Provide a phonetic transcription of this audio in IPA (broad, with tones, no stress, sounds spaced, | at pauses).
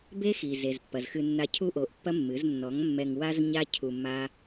b e˦ x i˨ z e˨ z pː ɐ˨ z x ɨ˧ nː a˧ cʰ u˦ ʔ o˨˦ ʔ pː ɐ˦ mː ɨ˨˦ z nː ɔ˨˦ ŋ mː ɛ˧ ŋ w a˦ z ɲ a˦ cʰ u˧ mː a˦